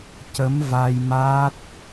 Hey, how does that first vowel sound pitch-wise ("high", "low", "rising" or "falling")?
rising